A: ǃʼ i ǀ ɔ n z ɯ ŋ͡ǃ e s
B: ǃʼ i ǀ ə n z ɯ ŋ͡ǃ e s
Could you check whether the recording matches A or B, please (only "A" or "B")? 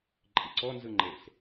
A